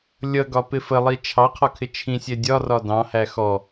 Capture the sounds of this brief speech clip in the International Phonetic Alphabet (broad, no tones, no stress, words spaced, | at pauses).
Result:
lʲʌɡɒpɪ fəlˠi t͡ʃʰɑqʰɔkʰɪ t͡ʃʰĩsʲɛ dʲɒrɒ dɑ̃hæ xɔ